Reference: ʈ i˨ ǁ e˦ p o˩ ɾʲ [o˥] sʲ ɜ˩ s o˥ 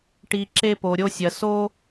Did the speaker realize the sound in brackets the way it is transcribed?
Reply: no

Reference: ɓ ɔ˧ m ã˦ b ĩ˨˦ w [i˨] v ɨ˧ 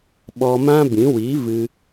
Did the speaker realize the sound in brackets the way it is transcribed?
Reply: no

